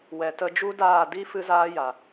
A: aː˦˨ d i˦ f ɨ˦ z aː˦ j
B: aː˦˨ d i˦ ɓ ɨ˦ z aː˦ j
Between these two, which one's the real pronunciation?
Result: A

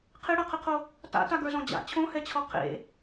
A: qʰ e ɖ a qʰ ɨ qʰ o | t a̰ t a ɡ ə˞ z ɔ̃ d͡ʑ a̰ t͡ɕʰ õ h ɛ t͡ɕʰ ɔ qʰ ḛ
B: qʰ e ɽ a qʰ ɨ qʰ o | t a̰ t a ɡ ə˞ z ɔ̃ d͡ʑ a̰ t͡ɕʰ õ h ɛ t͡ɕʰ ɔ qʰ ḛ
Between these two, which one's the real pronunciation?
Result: B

